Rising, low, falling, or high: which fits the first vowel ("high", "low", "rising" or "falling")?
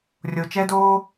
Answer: low